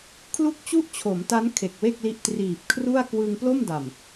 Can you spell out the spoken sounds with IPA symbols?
kʰ l u˥˩ k̚ t͡ɕ u˥˩ ʔ t͡ɕʰ o˩˦ m t a˦˥ n kʰ e˨˩ k̚ w e˥˩ k̚ l i˦˥ ʔ t r iː˨˩ p̚ kʰ r u˥˩ a̯ k w ɯ˧ ŋ p l o˥˩ m d a˨˩ m

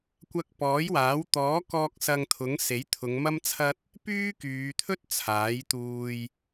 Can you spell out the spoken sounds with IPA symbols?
kʷ ɐ˧ k̚ p ɔː˨˥ j w aː˨˥ w t̪ ɔː˨˥ k ɔː˧ k̚ s ɐ˧ ŋ t̪ʰ ʊ˨˥ ŋ s e˨˥ j t̪ʰ ʊ˨˧ ŋ m ɐ˥ m t͡sʰ ɐ˥ t̚ | p yː˥ k yː˨˧ t̪ʰ ɵ˥ t̚ t͡sʰ aː˨˥ j t̪ uː˧ j

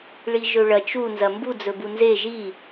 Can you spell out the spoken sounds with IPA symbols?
ɭ i ʒ ɵ ɭ ɐ t͡ʃ u n z ɐ m b u d͡z ɵ b u n z e ʒ i

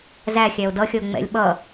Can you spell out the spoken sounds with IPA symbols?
z æ xʲ æ o̯ d ʌ xʲ ʌ o̯ ŋ͡m ɛ̰ lʲ ɓ ʌ

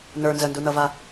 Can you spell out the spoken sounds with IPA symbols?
n ə˞ n z ə n d u n ʌ v a

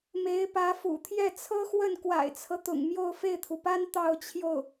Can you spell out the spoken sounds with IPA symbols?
m e˧˥ ɪ̯ p ä˧˥ f ṵ˨˩ t̪ʰ j ɛ˥˩ t͡sʰ ɤ˥ x w ə˥˩ n k w a̰˨˩ ɪ̯ t͡sʰ ɤ˦ t̪ ʊ̰˨˩ ŋ m j o˥˧ ʊ̯ f e˥˩ ɪ̯ t̪ʰ u˩ p a˥ n t̪ ɑ˥˧ ʊ̯ t͡ɕʰ j o˥˩ ʊ̯

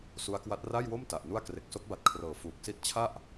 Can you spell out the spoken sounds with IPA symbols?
s u˦˥ a̯ k w a˦˥ t̚ r a˥˩ j w o˥˩ m t a˨˩ ʔ n u˥˩ a̯ k r e˨˩ k̚ s o˦˥ k̚ b a˨˩ t̚ kʰ r ɤː˨˩ f uː˨˩ k̚ s i˥˩ t̚ t͡ɕʰ a˥˩ ʔ

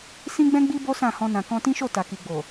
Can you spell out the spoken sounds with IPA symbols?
s ĩ˦ ɡ͡b ɛ̃˦ ɡ͡b i˦ b o˦ s ã˦˨ h ɔ̃˧ n ã˨ k ɔ̃˧ t ĩ˦ ʃ o˦˨ t a˨ k i˨ ɡ͡b o˨

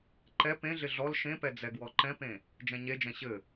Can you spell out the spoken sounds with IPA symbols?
ǃ ɛ p ẽ ɮ ɪ ɮ ɔ l ʃ ẽ p ɛ d͡z ɛ ɡ w ɔ ǃ ɛ̃ p ẽ | d͡ʒ ɛ̃ ɲ e d͡ʒ ɛ̃ ɕ ɘ

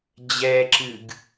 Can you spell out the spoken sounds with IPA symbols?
d͡ʑ ɛ ǁ ɨ ɡ

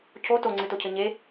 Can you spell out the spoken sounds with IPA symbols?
cʰ o t o ŋ͡ǀ ɨ t o cʰ ɘ ɲ e

